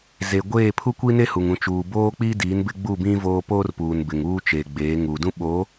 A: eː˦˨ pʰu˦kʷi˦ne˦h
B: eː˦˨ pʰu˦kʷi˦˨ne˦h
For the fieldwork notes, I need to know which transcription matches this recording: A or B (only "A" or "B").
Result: A